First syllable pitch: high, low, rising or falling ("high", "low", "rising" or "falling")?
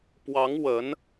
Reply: rising